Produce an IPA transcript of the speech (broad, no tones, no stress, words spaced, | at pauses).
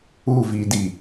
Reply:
uvidi